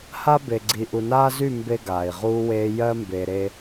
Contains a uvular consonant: yes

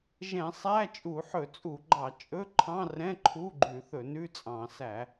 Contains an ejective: yes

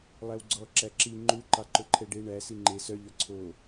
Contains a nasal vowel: no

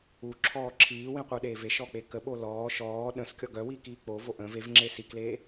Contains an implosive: yes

